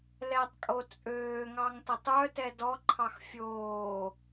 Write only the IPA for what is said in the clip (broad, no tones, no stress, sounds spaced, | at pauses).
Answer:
l ɛ tˤ kʼ o t͡sʼ øː ŋ ɑ ŋ t ʌ tˤ œ t ɛ d ɔ ǃʰ ɑ x fʲ oː